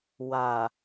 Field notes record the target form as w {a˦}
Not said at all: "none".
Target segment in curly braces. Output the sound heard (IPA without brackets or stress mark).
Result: a˨